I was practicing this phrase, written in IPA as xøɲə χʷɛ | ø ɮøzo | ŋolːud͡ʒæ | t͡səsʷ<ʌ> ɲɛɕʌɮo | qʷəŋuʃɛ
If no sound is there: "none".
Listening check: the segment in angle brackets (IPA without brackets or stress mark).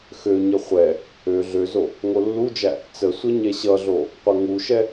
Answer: ʌ